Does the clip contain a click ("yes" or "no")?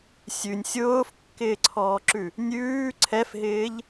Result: yes